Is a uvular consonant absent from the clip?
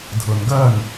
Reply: yes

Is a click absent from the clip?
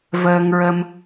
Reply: yes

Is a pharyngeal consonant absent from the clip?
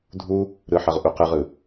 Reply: no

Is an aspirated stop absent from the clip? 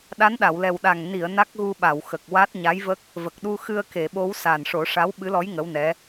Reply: yes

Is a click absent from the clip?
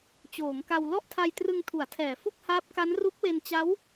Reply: yes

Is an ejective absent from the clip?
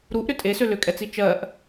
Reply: no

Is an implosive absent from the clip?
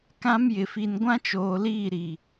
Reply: yes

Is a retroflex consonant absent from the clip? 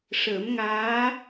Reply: no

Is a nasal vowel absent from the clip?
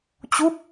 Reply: yes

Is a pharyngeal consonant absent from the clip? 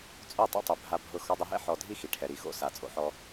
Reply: no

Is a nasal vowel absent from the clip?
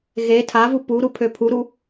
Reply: yes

